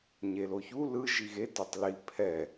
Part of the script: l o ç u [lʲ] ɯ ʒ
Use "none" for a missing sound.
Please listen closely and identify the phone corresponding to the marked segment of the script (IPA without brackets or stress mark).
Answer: l